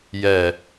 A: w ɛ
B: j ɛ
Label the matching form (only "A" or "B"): B